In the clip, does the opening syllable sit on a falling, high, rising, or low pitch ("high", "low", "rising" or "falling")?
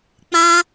high